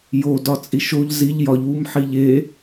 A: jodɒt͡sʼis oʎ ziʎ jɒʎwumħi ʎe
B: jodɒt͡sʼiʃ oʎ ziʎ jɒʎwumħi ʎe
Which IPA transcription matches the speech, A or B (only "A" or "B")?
B